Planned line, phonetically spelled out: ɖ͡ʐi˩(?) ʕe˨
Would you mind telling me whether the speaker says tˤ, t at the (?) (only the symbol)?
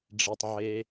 tˤ